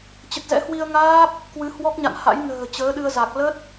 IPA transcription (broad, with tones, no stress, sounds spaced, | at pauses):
t͡ɕ ə˨˩ t̚ z ɛ̰˧˥ h w i˧ ə̯ ŋ aː˦˥ p̚ | k w ɨ˨˦ h w ɔ˦˥ k̚ ɲ a̰˧˨ n h a̰˧˥ j n ə̤ː˨˩ t͡ɕ əː˨˦ ɗ ɨ˧ ə̯ z a˨˩ k̚ l ə˦˥ t̚